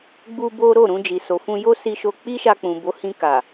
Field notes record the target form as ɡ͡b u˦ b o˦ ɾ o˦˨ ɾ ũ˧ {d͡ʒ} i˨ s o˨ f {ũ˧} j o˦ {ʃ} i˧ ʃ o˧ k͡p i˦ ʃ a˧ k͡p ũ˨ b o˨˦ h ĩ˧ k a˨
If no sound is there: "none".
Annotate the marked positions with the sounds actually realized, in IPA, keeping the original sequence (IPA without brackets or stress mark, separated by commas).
d͡ʒ, ũ˧, s